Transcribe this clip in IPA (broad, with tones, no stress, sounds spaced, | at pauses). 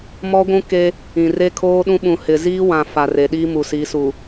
m ɔ˦ ɡʷ ũ˦ k e˦ | ĩ˨ r e˦ kʰ oː˦ ɗ ũ˦ ɓ ũ˨ h ɪ˨ z iː˦ w ã˨ f a˨ r e˨ ɗ i˦ m u˨ s i˨˦ s u˨